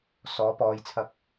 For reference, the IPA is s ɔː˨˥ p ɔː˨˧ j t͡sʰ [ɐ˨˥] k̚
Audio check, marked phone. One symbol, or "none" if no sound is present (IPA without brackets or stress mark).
ɐ˧